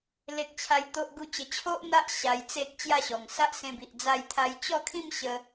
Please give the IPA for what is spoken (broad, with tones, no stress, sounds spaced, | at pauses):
l e˦ k̚ t͡ɕʰ a˦ j t̪ o˦ ʔ ɡ u˦ t͡ɕ ə˧ t͡ɕʰ o˦ ʔ n̪ a˦ ʔ ɕ a˧ j t͡s e˦ k̚ t͡ɕ j a˥˧ ɕ ɔ˨˩ ŋ s a˦ ʔ s ẽ˧ b i˨ ʔ d͡z a˥˧ j t̪ʰ a˦ j t͡ɕ ɔ˥˧ kʰ ĩ˥˧ m ɕ ə˧